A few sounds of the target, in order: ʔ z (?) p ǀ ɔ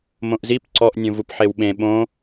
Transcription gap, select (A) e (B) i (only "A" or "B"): B